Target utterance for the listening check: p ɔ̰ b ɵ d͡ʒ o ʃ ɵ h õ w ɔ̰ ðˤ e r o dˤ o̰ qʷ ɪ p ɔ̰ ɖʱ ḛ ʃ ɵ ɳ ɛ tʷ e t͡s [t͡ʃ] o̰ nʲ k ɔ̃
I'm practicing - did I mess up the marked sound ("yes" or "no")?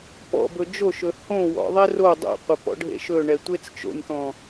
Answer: no